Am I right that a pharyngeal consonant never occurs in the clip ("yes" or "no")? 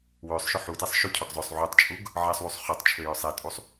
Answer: no